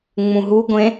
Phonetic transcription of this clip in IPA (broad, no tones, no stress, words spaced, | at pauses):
ŋ͡mũɦuɡʷẽ